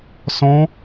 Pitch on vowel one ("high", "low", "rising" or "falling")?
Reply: high